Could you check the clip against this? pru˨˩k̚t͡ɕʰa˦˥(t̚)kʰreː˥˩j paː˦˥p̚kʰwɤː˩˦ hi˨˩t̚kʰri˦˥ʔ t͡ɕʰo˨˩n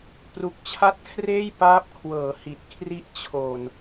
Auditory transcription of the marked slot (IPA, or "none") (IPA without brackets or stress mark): t̚